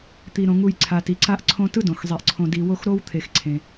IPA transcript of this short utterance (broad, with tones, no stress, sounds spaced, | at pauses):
t̪ i˩ ɾ õ˩ ŋ u˨ j ǀʰ a˩ t i˩ ǀ a˦ ʔ ǀʰ õ˦ t ɯ˥ d õ˩ x zˤ i˩ ʔ ǀʰ õ˨ d i˨ w o˦ x ɾ o˥ w t̪ʰ e˨ x ǀʰ ẽ˩